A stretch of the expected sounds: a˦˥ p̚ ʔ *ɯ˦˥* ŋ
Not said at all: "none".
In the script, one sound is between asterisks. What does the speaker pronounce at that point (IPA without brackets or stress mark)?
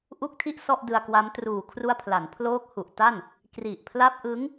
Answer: ɯ˦˥